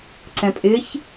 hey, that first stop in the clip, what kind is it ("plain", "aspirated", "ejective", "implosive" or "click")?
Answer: click